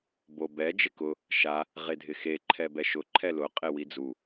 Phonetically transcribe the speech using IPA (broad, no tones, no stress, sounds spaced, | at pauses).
b o b ɛ d͡ʒ ɪ k ʊ | ʃ a | ʁ e dʱ ɪ x e ǃʰ ɛ b ɛ ʃ ʊ ǃʰ ɛ l ʊ qʼ e w i d͡z u